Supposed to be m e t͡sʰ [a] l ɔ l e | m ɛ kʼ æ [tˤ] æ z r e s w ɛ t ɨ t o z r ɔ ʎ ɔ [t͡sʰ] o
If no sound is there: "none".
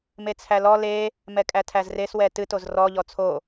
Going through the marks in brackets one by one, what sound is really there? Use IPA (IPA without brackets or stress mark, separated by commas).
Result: æ, tʰ, t͡sʰ